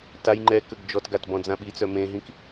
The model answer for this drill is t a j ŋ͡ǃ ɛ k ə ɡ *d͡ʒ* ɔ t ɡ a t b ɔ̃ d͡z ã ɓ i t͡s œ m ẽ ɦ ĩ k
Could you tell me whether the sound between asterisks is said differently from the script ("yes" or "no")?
no